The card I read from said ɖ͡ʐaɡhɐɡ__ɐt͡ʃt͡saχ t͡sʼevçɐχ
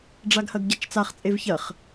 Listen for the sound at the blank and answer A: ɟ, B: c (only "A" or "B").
A